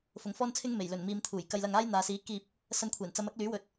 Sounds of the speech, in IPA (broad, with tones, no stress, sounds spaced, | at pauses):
f ʊ˨˧ ŋ f ɔː˥ n t͡sʰ ɪ˥ ŋ m e˨˩ j l ɵ˨˩ n m iː˨ m t̪ʰ uː˨˩ j k ɐ˧ j l ɐ˧ ŋ aː˥ j n̪ aː˨ s iː˨˥ k iː˧ p̚ | s ɐ˧ n kʷʰ ɛː˨˩ n t͡s ɐ˨˧ m ɐ˨˥ k̚ l yː˨˥ w ɵ˨ t̚